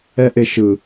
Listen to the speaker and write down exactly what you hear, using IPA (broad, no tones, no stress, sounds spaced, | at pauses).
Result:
ɛ ʔ e ʃ ɯ